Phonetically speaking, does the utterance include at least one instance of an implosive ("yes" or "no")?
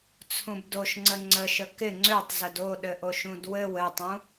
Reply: yes